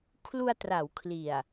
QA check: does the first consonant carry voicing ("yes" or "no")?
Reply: no